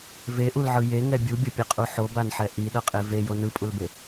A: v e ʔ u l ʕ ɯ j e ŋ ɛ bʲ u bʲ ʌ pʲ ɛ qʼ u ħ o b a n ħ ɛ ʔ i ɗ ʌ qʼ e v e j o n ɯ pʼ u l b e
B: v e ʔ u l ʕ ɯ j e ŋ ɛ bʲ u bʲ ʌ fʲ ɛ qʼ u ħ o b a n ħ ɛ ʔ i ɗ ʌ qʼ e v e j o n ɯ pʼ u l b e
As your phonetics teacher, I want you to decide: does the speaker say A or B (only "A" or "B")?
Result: A